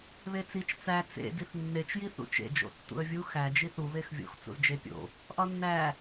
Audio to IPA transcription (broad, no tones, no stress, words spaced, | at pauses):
βet͡sit͡ʃ t͡sæ t͡sḛ diθnːet͡ʃ jiθṵt͡ʃḛ d͡ʒo̰tːṵə̯vʲu xæ d͡ʒiθu βexvʲo̰x t͡sṵzd͡ʒepʲo̰ | ʔɒnːæ